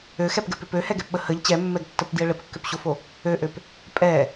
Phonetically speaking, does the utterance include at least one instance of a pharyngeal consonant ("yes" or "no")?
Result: no